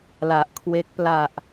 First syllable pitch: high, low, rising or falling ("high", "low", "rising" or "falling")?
low